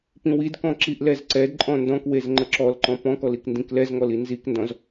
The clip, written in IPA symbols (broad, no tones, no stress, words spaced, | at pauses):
pĩwidkɔ̃ ǁiʔlɛzǀɛdǃʼɔ̃ ndɔ̃kwez ŋ͡ǃəǁɔlǃɔ̃ pɔ̃kɔl ikndĩklɛzŋɔl inzikndɔ̃z